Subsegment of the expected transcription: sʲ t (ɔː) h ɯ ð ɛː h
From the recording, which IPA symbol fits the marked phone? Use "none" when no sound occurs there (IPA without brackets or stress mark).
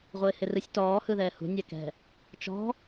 ɔː